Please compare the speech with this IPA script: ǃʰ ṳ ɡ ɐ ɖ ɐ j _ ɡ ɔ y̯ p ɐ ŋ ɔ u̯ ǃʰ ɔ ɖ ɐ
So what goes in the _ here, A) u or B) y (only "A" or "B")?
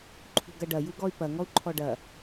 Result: A